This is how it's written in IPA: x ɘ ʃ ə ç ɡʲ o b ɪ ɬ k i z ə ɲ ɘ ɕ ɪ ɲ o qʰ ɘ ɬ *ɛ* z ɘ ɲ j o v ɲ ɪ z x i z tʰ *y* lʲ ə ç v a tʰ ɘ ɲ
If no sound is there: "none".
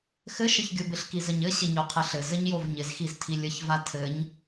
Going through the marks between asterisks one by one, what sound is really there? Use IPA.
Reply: ɘ, i

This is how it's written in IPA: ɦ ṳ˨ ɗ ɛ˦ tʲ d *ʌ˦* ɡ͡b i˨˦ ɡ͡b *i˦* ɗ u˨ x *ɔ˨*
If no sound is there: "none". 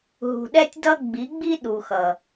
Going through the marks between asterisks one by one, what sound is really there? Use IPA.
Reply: ʌ˦, i˦, ʌ˨

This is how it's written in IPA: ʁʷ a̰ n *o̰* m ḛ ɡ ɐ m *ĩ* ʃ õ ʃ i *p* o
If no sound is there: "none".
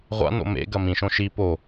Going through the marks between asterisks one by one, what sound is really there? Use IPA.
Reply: o̰, ĩ, p

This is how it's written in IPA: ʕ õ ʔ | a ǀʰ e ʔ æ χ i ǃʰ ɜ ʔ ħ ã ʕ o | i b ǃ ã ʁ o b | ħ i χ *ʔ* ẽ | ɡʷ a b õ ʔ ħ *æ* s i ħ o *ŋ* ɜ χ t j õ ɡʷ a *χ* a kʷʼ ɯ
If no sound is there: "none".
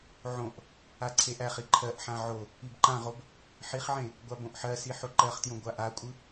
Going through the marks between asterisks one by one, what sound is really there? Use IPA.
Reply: ʕ, ɜ, ǃ, ʔ

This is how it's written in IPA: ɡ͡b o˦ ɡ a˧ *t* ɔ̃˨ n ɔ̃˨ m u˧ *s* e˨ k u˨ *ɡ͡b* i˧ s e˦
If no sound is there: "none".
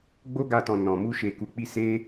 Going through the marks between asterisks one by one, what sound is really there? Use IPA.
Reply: t, ʃ, k͡p

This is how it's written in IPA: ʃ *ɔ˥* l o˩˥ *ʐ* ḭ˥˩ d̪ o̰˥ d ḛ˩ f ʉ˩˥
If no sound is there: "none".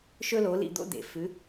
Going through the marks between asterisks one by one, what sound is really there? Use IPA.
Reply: ɵ˥, l

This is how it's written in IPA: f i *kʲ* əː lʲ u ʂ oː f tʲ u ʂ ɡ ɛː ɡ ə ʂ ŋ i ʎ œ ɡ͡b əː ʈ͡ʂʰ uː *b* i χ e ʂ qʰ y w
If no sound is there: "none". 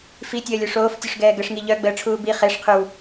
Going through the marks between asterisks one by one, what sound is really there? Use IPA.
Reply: tʲ, b

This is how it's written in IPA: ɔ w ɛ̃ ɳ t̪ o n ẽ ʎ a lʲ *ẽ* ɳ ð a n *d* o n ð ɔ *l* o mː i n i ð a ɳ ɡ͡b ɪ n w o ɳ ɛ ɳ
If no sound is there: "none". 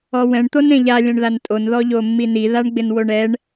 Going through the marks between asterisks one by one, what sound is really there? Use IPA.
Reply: ɛ̃, tʼ, ʎ

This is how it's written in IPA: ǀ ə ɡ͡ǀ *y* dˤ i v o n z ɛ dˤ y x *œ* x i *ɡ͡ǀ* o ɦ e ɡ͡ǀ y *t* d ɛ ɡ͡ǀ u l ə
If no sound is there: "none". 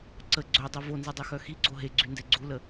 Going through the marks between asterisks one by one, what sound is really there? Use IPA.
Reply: ø, œ, ɡ͡ǀ, n

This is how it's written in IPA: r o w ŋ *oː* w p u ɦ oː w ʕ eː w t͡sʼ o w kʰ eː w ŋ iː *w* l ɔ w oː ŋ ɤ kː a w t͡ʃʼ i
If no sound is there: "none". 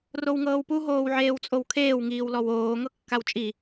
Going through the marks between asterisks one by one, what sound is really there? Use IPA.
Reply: ɤː, w

